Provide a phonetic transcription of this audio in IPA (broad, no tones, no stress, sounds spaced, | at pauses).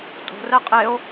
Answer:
tʼ o̤ r ɛ qʼ e o̯